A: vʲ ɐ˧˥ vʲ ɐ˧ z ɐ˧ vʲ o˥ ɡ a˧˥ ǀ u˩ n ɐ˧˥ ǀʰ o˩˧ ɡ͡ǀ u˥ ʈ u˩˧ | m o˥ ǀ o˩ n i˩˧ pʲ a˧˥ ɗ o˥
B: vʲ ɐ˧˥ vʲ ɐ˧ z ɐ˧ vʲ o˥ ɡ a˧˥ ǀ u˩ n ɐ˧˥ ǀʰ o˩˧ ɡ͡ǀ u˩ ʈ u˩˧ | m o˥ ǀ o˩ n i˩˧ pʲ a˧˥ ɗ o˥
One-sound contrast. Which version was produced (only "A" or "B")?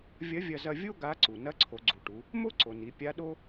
B